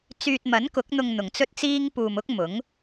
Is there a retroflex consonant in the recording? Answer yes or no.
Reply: no